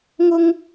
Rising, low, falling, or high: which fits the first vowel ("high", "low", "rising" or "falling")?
high